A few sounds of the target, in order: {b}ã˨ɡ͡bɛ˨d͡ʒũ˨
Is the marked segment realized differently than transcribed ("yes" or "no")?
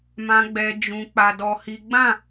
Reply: yes